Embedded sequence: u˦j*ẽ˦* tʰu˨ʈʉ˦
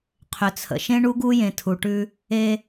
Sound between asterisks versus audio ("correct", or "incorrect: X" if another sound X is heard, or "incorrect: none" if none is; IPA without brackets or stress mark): incorrect: ẽ˨